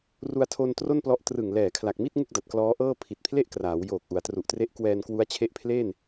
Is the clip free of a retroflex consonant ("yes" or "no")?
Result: yes